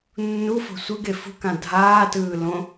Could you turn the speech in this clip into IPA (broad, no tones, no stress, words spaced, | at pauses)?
nːufo̤ sʷɯɡe fṳkã dʱaːtɯː lõ